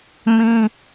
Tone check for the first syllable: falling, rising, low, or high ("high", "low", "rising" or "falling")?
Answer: high